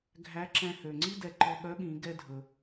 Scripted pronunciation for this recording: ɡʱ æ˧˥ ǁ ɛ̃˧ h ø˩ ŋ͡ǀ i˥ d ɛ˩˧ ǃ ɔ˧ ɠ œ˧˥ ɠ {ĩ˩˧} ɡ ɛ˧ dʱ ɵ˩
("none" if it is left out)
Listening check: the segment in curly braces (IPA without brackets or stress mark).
ĩ˩˧